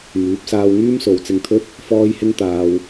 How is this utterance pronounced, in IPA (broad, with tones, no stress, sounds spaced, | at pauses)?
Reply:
m yː˨˥ p̚ s aː˧ w ŋ yː˥ m s o˨˧ w t͡s ɪ˧ ŋ t̪ʰ ɵ˥ t̚ | f ɔː˥ j h ɪ˥ ŋ t̪ aː˧ w